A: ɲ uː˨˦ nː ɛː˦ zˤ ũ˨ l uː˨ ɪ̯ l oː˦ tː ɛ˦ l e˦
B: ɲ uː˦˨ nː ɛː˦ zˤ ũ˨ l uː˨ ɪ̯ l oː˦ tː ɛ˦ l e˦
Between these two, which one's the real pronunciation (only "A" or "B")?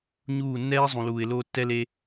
B